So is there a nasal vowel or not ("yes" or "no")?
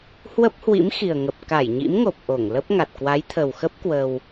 no